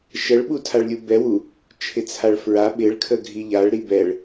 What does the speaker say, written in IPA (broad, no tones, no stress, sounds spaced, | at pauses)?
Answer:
ʃ ə ɭ ɓ u tʰ a ɭ lʲ u b ɛ w u | t͡ʃʰ ɪ t͡sʰ a ɭ f ɹ a ɓ ɪ ɭ kʰ ə ɡʱ i ʎ a ɭ ɾ i b ɛ ɭ